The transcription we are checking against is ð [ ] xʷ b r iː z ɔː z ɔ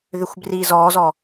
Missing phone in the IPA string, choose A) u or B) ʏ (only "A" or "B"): B